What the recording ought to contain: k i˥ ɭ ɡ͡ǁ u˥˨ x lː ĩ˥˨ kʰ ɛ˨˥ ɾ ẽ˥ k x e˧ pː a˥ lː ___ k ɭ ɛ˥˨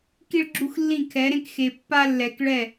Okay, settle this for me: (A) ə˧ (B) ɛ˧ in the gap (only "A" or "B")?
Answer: B